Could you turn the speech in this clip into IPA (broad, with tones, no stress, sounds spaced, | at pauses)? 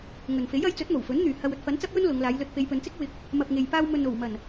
ŋ ɵ˨ n f e˨˥ j ɐ˨˥ j t͡s ɵ˨˥ t̚ m o˨˩ w f ɵ˨˥ n n̪ yː˨ h ɐ˧ w ɵ˧ t̚ f ɐ˨˥ n t͡s ɐ˥ p̚ j ɵ˥ n l ʊ˨˧ ŋ l aː˨˧ j l ɵ˧ t̚ p e˨˧ j p ɵ˨˧ n t͡s ɪ˥ k̚ w ɪ˧ k̚ | m ɐ˨ p̚ ŋ e˨ j p aː˧ w m ɵ˨ n o˨˩ w m ɐ˨˩ n